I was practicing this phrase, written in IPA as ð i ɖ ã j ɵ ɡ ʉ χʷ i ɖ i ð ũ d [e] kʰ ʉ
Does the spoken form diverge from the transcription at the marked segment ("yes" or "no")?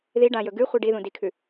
yes